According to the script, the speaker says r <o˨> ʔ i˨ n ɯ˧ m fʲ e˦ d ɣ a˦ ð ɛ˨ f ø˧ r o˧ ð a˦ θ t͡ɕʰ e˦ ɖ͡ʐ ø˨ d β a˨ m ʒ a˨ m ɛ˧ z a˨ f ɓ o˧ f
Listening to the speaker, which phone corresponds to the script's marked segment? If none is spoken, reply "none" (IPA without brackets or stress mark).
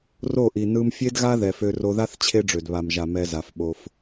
o˦˨